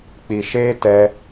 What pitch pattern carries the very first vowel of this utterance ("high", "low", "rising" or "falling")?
low